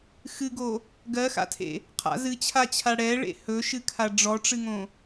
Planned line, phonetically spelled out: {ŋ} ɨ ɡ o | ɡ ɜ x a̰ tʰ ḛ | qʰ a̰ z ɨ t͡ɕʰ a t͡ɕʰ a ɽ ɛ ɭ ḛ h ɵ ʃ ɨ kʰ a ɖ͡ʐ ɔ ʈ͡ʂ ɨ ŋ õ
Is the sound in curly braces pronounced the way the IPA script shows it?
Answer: no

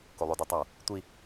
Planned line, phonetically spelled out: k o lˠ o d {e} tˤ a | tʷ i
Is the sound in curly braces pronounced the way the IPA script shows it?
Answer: yes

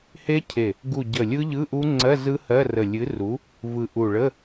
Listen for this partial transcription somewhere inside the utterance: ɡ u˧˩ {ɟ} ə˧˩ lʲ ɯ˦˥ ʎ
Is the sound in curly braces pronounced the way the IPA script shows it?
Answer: yes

